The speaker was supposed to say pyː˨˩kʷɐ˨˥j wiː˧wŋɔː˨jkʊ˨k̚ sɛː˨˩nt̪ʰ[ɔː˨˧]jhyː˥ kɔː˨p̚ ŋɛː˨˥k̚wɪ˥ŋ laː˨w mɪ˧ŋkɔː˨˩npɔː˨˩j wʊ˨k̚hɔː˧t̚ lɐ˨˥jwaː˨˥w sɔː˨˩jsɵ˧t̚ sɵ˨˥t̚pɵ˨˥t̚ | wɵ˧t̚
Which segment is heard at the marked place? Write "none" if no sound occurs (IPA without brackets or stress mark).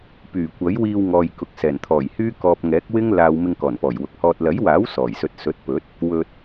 ɔː˨˩